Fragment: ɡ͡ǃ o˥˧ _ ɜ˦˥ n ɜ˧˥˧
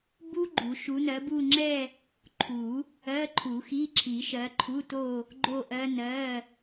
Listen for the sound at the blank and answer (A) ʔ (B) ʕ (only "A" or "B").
A